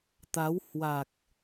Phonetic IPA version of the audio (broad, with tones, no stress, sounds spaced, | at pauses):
t̪ a˨˦ w h w a˨˩ k̚